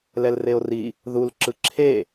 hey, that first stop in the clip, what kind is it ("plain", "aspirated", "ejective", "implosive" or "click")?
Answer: click